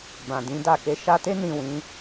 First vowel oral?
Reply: no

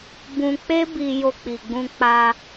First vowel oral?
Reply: no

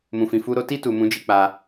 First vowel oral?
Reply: no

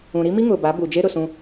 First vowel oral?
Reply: no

